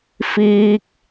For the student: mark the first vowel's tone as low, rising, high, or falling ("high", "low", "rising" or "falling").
low